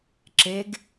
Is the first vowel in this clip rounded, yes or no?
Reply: no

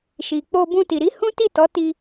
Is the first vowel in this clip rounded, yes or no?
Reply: no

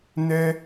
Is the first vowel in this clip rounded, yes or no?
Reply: no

